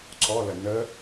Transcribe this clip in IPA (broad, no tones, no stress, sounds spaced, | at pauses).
ǀ ɔ l ə n ə